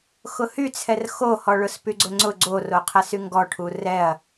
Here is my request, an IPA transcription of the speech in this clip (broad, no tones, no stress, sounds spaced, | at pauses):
x ʊ h y t͡sʰ ɛ r x o h ɔ ɭ ʊ s p y ɡ͡ǀ ʊ ŋ͡ǀ ʊ ɡ͡ǀ o r o qʰ ɐ s y ŋ ɡ ɔ ʈʰ u r ɛ ɐ̯